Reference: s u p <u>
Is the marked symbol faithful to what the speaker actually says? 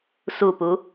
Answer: yes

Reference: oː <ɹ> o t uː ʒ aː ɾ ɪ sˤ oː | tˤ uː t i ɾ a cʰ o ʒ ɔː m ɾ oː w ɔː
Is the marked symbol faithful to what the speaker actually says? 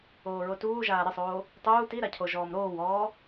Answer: yes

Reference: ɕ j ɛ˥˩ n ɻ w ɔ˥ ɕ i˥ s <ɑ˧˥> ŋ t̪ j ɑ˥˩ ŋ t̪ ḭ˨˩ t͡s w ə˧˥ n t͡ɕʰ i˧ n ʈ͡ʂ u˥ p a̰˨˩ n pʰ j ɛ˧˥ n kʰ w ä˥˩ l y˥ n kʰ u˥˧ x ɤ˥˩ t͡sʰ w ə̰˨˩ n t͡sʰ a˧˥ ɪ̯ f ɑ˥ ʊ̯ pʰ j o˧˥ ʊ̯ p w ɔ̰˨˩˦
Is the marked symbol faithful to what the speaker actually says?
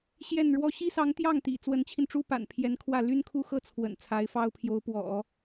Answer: yes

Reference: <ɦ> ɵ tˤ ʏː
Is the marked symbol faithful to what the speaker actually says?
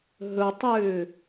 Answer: yes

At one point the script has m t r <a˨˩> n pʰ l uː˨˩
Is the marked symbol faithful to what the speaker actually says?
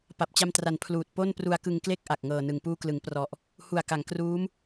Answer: yes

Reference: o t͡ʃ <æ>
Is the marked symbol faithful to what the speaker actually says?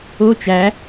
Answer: yes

